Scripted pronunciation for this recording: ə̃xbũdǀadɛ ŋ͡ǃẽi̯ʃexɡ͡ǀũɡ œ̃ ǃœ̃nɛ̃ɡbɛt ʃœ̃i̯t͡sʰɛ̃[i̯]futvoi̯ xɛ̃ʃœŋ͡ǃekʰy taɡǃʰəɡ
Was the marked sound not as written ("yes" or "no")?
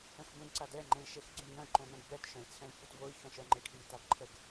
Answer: no